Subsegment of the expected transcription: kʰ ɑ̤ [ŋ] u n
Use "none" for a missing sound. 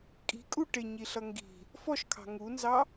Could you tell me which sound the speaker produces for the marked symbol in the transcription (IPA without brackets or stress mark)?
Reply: ŋ